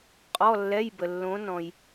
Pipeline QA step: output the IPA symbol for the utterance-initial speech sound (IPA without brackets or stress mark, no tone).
qʼ